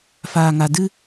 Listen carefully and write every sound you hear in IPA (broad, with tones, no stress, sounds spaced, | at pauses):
f aː˨ ŋ a˨ d ɨ˦